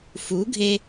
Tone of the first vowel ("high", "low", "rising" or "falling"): rising